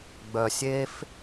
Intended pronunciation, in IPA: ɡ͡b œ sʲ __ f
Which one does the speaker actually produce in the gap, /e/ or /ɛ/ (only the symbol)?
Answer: e